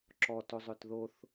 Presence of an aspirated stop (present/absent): absent